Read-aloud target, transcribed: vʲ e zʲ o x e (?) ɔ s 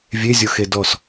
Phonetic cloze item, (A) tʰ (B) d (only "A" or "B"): B